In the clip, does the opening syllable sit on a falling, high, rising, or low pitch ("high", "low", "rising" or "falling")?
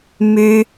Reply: high